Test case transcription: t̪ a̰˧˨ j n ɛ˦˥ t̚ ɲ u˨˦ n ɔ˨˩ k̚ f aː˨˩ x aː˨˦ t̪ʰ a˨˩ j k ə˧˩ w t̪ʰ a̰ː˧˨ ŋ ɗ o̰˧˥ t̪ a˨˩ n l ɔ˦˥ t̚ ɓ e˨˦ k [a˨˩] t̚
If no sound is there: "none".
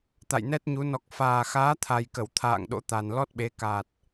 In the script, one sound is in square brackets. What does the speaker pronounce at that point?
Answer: a˨˩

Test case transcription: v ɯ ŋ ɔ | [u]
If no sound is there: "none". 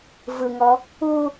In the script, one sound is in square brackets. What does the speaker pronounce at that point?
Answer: u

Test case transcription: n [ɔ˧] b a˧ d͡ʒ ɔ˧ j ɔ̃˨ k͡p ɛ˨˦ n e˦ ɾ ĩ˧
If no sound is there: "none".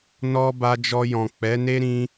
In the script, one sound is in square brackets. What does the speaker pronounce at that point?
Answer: ɔ˧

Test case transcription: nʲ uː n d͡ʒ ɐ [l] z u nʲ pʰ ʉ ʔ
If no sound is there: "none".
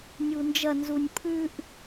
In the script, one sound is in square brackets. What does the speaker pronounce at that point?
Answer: n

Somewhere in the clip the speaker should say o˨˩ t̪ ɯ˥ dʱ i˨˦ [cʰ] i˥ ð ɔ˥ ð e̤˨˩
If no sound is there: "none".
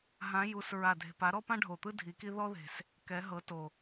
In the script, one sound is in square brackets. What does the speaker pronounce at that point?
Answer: k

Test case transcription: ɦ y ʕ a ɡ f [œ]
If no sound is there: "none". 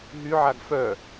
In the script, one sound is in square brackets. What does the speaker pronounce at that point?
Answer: œ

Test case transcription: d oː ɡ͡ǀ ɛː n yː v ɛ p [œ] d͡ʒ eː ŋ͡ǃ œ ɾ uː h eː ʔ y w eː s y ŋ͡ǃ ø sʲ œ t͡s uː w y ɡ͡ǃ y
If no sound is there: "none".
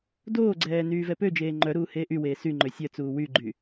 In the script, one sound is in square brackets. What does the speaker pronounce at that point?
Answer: ø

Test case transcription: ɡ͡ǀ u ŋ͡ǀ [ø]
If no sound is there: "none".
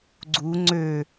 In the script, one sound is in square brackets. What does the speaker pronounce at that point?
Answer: ø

